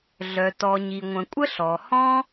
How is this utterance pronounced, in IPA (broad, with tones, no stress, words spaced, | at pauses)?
ɮœ˩ tɔ˩ ɲi˩ŋʷə̃˩kʷʼə˥ ɬɔ˩hɔ̃˥